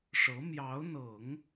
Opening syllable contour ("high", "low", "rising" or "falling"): rising